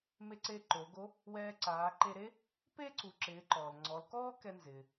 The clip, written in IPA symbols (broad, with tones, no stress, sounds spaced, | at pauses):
m e˧ ǀ e˧ ǃ o˩˧ ɡ o˧˥ | w ɛː˧ ǀ aː˩˧ ǃ e˧ ɾ e˥ | p e˥ ǀ u˩˧ ǁ ɪː˩˧ ǃ ɔ˩ l ŋ͡ǀ ɔ˩˧ l k ɔː˥ k ɛ˧ n z ɪː˩